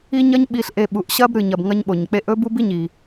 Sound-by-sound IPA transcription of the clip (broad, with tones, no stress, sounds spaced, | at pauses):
i˦ ɲ ɐ˦ ɲ ɓ i˨ ɬ ʔ e˨ ɓ u˨ ʔ ɕ ɐ˦ b ɾ ɨ˨ ɲ ɐ˨ b ŋ ɐ˦ ɲ ɓ o˨ ɲ k͡p e˦ ʔ ɵ˥ b u˦ b i˦ ɲ i˨